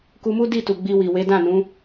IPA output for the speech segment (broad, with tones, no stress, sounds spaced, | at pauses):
k u˧ m u˦ d i˦˨ t u˨ ɡ͡b i˧ w i˨ w e˨˦ d ã˦˨ n ũ˨˦